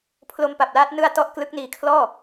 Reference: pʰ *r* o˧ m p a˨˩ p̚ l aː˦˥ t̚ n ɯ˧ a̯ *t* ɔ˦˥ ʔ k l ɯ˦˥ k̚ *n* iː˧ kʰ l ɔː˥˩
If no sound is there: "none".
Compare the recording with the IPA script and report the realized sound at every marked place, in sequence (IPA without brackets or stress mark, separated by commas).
l, t, n